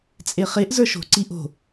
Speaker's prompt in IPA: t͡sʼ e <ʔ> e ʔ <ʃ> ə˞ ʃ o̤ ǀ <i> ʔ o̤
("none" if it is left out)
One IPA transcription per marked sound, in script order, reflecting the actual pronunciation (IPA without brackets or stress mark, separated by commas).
χ, z, i